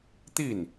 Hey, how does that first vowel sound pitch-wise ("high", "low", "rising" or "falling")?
falling